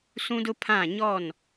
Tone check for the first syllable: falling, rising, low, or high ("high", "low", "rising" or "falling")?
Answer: high